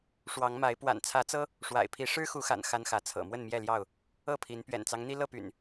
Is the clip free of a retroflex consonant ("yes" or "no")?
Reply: no